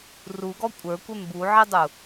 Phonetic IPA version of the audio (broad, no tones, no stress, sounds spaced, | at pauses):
r u ɡ ɔ kʷʼ ə˞ kʷ ɛ m b u ʕ i dˤ u